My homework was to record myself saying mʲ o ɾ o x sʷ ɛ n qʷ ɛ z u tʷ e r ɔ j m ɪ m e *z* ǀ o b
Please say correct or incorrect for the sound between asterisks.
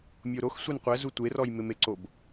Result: incorrect: none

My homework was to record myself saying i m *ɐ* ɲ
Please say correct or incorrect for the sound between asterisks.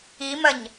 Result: correct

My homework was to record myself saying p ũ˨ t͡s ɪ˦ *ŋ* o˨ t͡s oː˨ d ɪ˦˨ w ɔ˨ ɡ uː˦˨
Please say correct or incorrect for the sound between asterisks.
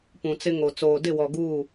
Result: correct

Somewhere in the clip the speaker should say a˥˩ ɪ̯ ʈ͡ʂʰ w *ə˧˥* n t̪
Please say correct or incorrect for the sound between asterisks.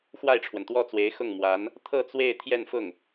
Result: incorrect: ə˩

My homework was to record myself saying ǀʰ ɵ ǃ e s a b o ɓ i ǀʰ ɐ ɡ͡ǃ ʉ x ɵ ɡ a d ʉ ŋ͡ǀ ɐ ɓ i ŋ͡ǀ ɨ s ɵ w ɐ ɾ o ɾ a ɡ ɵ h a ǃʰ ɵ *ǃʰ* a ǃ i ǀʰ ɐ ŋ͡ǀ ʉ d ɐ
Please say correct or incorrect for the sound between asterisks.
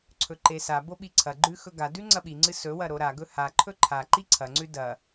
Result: correct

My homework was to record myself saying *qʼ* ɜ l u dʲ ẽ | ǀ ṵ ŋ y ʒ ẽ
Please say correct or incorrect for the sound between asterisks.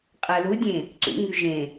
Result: correct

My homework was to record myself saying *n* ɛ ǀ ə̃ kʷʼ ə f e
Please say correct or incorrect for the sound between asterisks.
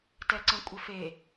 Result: incorrect: t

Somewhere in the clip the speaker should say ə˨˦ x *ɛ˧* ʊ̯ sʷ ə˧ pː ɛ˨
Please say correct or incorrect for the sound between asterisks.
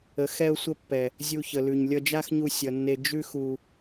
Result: correct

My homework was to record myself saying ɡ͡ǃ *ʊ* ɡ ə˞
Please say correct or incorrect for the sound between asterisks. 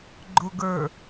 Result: correct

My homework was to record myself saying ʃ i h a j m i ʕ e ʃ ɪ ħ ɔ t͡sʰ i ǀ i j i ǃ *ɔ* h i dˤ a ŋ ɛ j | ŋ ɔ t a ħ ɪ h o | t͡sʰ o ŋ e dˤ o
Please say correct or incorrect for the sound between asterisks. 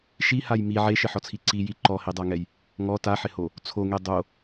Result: correct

